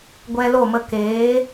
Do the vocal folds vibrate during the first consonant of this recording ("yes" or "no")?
yes